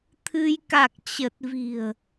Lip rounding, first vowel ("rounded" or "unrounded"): unrounded